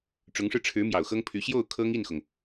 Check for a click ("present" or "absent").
absent